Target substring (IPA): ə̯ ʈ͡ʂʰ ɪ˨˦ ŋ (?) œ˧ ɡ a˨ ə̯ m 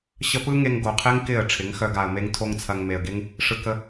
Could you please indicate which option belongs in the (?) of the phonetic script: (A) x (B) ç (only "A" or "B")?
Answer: A